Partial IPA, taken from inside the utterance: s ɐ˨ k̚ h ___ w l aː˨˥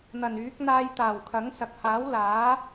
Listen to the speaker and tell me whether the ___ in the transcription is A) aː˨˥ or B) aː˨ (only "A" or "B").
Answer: A